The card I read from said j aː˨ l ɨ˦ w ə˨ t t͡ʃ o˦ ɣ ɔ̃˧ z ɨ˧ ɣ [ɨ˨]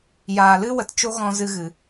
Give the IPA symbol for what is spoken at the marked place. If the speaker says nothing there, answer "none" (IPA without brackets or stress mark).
ɨ˨